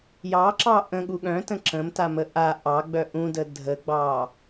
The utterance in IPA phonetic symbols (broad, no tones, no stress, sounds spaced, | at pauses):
j ɑ ǁ ɑ ʔ ə̃ ɠ u ɠ œ̃ t ə̃ ǁ ə̃ m t a m ə ʔ a ʔ ɑ ɡ͡b œ ʔ ũ d ə dʱ ə ɡ͡b ɑ